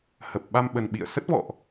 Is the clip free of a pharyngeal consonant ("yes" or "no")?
yes